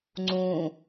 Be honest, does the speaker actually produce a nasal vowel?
yes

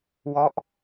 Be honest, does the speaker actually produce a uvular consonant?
no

